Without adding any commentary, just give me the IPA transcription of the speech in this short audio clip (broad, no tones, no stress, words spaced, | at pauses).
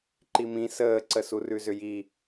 ǃimĩ səːǀə surʉzʏji